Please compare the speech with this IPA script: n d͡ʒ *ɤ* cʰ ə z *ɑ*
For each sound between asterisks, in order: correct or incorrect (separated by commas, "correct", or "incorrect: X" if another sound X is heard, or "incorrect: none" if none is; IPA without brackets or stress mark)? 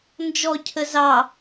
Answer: incorrect: ɔ, correct